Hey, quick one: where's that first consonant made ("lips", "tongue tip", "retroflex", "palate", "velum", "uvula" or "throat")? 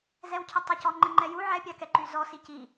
tongue tip